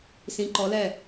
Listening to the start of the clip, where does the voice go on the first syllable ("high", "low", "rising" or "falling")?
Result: rising